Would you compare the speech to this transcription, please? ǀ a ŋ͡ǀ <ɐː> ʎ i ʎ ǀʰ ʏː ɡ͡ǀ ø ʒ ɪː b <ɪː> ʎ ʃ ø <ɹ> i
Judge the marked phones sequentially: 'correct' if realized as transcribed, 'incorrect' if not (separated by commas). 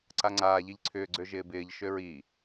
incorrect, correct, correct